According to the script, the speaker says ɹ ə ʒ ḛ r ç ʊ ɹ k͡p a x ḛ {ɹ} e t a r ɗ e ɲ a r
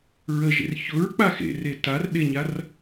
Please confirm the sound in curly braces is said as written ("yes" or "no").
no